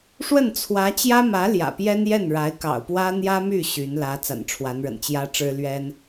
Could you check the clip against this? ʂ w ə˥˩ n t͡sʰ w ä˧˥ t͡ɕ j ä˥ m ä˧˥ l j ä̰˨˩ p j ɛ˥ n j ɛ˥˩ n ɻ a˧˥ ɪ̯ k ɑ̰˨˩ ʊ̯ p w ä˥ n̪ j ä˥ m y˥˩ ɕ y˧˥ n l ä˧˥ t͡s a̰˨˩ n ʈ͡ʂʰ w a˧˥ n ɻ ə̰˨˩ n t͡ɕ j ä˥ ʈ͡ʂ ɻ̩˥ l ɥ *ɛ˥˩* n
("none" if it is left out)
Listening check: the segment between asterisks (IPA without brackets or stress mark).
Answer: ɛ˥